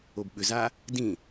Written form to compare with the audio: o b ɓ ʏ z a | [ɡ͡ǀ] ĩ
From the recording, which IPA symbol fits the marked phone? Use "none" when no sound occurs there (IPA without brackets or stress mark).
d